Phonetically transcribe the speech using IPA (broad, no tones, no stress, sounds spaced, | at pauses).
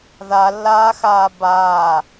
ð a lː aː x aː b aː